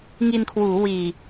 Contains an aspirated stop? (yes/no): yes